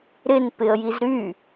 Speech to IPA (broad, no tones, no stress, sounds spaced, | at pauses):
ɾ ɪ n p ɪ ə̯ j i z ɾ y